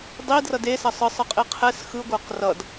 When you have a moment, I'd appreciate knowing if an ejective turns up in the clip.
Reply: yes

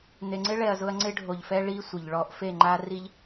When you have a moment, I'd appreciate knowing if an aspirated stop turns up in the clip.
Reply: no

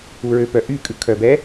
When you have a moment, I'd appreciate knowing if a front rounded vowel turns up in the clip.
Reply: yes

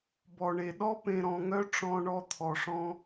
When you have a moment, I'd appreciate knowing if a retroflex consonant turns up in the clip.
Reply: yes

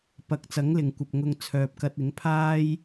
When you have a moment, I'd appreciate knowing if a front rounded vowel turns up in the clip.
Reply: yes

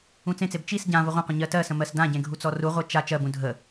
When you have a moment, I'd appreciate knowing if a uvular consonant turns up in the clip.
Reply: yes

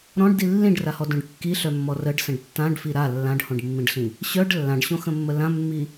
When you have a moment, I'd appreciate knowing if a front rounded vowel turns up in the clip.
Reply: yes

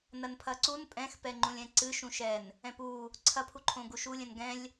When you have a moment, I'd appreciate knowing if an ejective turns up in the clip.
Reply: yes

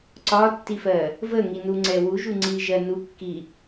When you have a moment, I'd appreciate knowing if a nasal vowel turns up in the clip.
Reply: no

